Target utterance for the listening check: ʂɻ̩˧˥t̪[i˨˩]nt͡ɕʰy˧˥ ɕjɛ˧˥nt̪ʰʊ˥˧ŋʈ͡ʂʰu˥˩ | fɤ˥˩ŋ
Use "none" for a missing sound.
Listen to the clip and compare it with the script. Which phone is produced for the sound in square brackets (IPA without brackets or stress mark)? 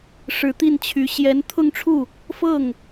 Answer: i˥˩